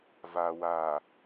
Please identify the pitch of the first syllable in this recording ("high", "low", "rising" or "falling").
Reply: low